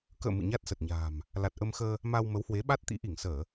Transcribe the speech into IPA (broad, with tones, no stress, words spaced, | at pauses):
kə̰ː˧˨ mɨ̰˧˨ɲa˦˥t̚ sə˨˩t̚ɲa̤ː˨˩m | la˨˩t̚ʔə˧mxəː˧ | ma˧w mə˨˦whwe˨˦ɓa˦˥t̚t̪ḭ˧˥ ʔi˧˩ŋsəː˧˩˨